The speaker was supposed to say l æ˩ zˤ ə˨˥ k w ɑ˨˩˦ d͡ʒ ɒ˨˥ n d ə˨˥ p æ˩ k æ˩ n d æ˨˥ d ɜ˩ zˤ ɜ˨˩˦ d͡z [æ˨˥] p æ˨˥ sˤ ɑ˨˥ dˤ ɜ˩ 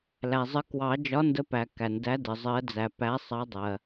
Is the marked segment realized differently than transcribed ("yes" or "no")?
yes